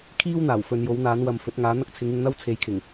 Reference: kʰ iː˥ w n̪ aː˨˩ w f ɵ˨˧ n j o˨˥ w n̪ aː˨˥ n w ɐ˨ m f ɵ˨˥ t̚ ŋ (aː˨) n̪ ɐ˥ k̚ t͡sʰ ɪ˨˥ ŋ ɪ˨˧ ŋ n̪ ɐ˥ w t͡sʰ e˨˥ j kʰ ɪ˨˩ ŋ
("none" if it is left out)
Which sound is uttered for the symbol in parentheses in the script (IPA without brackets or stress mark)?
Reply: aː˨˥